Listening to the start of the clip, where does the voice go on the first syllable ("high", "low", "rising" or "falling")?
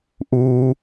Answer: high